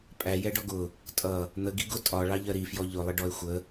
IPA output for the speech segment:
pʼæjɛ ɖɔɡʊ | tʼʌ | n̪əɡi ɡʊtʼɒ ɭɑʎɜɾifjɔ ʎʊlˠɪ ɖɔe̯xʷə

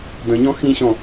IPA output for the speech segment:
də̃ɲɔ̃ xĩɕɔ̃

